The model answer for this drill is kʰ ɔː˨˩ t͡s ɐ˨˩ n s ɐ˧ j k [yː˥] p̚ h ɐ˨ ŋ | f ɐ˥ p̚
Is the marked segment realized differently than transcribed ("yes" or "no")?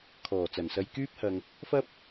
no